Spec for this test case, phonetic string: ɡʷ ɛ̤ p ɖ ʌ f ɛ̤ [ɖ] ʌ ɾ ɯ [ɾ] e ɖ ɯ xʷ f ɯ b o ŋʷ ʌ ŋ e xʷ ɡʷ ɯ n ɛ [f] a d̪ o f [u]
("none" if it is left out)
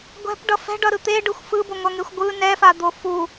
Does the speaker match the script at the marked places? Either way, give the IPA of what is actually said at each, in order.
ɖ, t̪, f, u

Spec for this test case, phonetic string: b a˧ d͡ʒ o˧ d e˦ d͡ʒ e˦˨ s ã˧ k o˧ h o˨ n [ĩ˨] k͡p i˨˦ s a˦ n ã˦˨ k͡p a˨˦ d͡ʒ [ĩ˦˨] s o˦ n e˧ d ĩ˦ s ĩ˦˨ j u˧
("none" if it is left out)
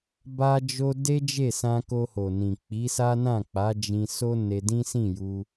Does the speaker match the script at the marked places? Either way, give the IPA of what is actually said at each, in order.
ĩ˨, ĩ˧

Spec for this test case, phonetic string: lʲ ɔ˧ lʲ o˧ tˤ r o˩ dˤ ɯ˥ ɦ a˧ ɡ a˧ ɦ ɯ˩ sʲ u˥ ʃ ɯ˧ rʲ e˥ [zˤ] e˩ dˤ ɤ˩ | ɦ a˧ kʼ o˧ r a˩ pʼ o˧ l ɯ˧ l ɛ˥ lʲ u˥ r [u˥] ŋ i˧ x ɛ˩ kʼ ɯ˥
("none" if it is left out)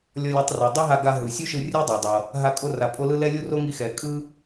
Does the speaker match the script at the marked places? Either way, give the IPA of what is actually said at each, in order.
dˤ, o˥

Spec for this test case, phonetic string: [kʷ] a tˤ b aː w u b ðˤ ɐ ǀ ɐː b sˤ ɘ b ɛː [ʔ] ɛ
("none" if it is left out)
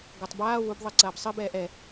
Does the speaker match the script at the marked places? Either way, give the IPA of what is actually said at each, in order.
ɡʷ, ʔ

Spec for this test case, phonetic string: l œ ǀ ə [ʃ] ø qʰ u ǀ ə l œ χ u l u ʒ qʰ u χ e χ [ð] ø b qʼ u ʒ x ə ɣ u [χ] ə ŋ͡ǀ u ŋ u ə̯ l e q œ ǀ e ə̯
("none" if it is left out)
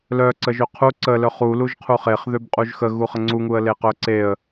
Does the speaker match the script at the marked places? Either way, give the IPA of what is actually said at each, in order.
ʒ, ð, χ

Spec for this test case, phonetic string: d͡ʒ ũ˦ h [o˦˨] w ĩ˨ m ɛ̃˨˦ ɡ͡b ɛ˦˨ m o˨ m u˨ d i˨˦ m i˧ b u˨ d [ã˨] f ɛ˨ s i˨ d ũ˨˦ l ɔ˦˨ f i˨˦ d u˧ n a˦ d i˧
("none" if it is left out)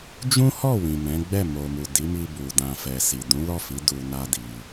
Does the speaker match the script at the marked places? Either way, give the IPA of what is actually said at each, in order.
ɔ˦˨, ã˨

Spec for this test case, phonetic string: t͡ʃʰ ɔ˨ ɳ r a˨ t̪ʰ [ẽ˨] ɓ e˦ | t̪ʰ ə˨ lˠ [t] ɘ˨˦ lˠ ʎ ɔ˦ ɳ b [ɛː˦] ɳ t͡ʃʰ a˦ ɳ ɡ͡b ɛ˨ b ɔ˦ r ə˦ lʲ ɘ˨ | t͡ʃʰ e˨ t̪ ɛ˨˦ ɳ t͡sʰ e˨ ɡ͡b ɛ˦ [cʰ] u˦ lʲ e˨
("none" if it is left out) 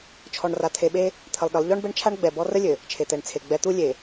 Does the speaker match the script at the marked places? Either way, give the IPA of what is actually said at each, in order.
e˨, ɗ, ɛ˦, t̪

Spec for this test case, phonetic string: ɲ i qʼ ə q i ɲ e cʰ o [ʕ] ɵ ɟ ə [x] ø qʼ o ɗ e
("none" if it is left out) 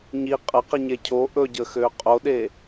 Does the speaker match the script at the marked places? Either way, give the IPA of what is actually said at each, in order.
ʔ, x

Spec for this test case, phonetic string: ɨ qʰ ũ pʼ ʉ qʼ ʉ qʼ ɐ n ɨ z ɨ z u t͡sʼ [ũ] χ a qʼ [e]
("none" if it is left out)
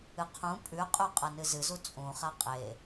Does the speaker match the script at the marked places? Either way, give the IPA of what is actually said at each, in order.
ũ, e

